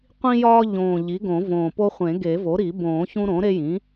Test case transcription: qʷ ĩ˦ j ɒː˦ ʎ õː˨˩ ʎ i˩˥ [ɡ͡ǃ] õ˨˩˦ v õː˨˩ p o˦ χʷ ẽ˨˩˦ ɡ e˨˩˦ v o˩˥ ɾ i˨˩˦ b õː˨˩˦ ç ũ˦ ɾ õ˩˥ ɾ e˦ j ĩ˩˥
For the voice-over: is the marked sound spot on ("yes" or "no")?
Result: no